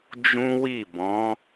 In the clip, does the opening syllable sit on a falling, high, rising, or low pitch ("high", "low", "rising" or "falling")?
high